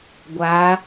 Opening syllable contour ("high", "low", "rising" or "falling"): rising